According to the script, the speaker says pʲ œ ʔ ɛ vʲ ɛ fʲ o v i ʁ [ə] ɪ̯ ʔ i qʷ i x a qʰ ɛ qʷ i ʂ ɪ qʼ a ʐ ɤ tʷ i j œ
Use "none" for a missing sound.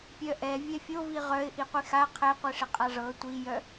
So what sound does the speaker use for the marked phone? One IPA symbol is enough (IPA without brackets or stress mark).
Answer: œ